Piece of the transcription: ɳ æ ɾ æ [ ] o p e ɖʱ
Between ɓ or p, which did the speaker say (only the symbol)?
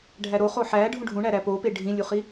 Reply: p